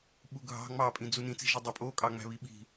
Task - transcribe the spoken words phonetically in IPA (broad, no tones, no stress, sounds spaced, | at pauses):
ɓ u ɡʱ ɑ̤ ŋ͡m ɑ pʼ ĩ d͡z u n ĩ t͡s i̤ ʒ i dˤ ø pʼ o kʼ ɑ ŋ͡m æ̤ β i ɓ i̤